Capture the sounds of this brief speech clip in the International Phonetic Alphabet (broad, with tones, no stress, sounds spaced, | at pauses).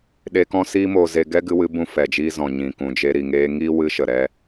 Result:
ɗ e˧ k ɔ̃˦ s iː˦ m oː˧ z e˧ ɡ ɛ˦ ɡ ɨ˧ w ɨ˧ b ũ˧ f ɛ˨ d͡ʒ iː˧ z ɔ̃˨ ɲ ĩ˨ k ũ˨ d͡ʒ e˧ ɾ i˨ ŋ eː˧ ŋ iː˦ w ɨ˦ ʃ ə˨ ɾ ɛ˦